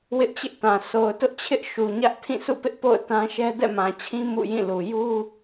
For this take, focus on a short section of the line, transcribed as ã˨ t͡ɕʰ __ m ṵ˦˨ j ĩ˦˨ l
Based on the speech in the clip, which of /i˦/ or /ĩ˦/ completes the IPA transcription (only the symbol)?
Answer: ĩ˦